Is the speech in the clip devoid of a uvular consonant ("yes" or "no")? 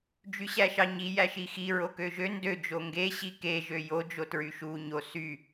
yes